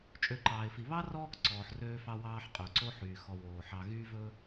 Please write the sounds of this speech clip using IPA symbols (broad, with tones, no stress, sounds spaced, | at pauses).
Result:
t͡ʃʼ ø˨ ǃ ɑː˩ ɪ̯ f i˩ β ɑ˥ r ɔː˦ k ǀ ɔː˩ ħ r øː˦ f ɑ˦ w ɑː˦ ħ qʼ ø˩ ǀ o˥ ħ yː˩ x ɔ˨ w oː˩ ħ ɑ˨ ɣ yː˥ v ɵ˥